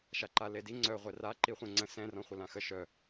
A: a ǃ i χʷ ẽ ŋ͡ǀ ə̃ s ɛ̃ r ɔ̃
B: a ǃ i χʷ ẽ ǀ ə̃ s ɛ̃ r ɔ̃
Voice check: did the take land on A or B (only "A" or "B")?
A